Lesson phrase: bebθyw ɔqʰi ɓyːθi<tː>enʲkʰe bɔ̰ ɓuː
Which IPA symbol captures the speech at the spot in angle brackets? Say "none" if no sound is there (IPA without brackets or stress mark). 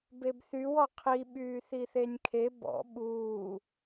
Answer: θ